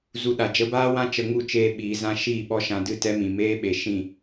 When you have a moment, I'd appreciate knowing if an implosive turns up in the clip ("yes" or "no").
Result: yes